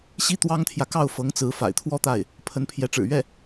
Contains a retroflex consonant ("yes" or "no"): yes